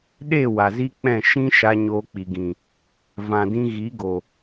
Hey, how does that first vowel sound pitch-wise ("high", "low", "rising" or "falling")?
falling